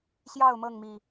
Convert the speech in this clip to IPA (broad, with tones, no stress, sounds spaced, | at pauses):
ɕ j ɑ˥˨ ʊ̯ m ɤ˥˨ ŋ m i˨˩